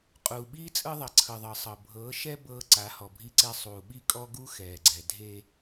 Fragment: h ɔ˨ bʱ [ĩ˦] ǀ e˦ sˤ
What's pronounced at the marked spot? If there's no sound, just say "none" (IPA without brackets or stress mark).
i˦